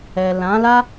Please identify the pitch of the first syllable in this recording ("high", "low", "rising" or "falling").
low